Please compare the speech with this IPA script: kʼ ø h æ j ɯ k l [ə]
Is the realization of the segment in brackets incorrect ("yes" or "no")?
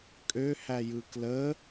no